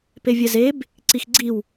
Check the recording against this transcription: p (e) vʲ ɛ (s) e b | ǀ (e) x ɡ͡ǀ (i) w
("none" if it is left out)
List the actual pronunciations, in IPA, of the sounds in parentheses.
e, z, i, i

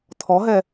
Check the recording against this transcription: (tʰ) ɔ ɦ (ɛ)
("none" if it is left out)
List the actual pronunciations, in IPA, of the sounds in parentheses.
tʰ, ɛ

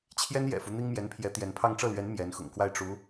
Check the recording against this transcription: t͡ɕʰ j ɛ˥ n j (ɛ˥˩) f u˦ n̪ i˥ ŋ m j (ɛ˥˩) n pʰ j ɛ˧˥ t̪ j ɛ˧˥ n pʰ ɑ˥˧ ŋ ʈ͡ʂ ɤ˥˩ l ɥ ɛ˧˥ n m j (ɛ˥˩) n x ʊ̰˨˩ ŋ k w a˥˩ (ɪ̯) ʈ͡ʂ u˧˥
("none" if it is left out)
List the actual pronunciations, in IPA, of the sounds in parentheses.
ɛ̰˨˩, ɛ˧˥, ɛ˧˥, ɪ̯

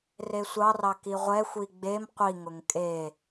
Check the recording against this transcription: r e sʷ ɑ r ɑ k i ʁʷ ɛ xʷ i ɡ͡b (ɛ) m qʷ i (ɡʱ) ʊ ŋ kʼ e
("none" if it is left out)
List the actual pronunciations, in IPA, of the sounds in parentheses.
e, ŋ

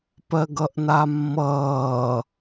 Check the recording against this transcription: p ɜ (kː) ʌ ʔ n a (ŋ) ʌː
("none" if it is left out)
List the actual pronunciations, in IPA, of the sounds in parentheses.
ɡ, mː

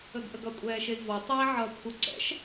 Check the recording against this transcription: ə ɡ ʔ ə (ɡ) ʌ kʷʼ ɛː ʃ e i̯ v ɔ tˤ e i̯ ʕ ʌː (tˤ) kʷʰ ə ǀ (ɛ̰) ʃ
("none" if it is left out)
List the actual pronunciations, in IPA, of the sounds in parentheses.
ɡ, none, ɛ̰

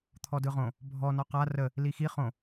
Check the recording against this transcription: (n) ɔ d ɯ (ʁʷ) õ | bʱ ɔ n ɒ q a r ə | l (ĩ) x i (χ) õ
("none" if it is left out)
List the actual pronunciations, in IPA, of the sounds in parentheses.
t̪ʰ, ʁ, i, χ

